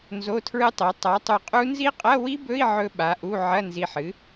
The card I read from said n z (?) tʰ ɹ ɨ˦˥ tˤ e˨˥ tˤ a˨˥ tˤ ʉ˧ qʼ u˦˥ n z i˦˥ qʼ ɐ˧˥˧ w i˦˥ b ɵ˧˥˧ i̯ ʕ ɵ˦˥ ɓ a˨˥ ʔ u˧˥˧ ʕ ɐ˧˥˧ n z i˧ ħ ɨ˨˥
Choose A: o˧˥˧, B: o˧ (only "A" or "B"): A